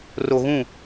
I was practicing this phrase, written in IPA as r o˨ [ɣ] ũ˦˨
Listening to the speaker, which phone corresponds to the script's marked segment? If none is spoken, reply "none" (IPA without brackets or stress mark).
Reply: ɣ